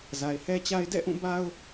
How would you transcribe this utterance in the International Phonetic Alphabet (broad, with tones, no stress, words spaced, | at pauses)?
za˨ɪ̯hɛ˦t͡ɕa˦ɪ̯ dɛ̰˦˨ʔũ˦˨ ba˦ʊ̯